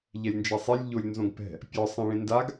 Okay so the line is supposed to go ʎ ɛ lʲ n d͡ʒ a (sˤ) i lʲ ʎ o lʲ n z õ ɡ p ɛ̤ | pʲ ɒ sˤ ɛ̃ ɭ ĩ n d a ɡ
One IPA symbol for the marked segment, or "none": sˤ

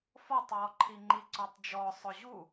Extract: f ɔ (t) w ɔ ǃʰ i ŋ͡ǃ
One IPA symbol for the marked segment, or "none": tˤ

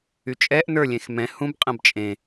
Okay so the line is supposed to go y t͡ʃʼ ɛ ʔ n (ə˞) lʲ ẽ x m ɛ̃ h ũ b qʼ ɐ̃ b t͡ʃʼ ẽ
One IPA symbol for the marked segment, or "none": ə˞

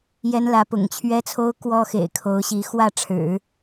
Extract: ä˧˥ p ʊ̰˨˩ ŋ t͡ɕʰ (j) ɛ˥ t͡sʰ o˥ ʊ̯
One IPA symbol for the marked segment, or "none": ɥ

